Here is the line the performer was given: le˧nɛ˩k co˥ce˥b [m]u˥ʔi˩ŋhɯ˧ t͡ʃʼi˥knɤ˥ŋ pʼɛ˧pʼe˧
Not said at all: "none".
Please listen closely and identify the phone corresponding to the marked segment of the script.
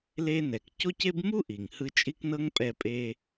m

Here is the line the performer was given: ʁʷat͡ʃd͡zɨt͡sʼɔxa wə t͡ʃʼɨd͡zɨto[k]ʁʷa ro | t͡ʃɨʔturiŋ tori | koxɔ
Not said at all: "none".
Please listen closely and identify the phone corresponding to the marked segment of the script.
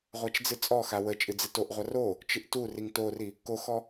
ʔ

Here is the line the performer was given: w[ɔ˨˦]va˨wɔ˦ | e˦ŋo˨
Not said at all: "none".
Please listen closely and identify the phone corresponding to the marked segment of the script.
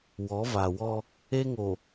ɔ˨˦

